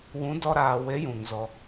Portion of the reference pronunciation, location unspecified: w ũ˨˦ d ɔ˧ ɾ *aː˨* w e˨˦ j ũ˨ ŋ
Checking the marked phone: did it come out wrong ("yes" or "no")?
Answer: no